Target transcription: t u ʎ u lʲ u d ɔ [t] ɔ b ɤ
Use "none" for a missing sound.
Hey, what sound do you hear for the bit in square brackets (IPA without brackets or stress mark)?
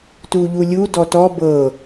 t